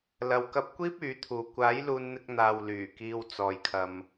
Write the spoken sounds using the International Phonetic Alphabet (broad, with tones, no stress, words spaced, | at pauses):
lɐ˨w kɐ˧p̚kʷiː˥p̚ yː˨˥t̪ʰuː˨ kʷaː˨˥j luː˧nn̪ɪ˧k̚n̪aː˨w lyː˨˩kiː˧wt͡sɔː˨jkʰɐ˨m